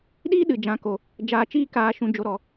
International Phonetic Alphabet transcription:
ɗiː˦ɗɨ˨ d͡ʒã˨˦ko˨ | d͡ʒaː˨t͡ʃiː˧ kaː˨ʃũ˨d͡ʒo˨ɾɔ˨

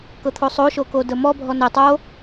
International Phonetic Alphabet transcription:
kɤt̪ʰosˤoʃo kodəmɔbʱɔ nə tˤo

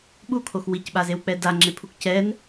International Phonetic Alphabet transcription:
ɓukʰox wicɓazewk͡pɛ daŋ͡ǁepʰuk cɛn

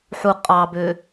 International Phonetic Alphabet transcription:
ħu qʼɑbø

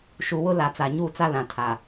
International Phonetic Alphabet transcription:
ʃu˨wʊ˦la˨ t͡sa˨ɲuː˦˨ t͡sa˦lã˨tʰaː˨

